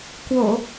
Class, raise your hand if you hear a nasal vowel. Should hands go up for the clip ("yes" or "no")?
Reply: no